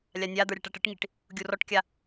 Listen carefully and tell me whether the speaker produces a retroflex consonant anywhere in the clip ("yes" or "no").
yes